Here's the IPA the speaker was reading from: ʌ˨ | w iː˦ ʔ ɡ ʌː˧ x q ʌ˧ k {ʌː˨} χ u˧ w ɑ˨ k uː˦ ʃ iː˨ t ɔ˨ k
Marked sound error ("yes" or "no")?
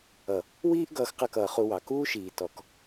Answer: no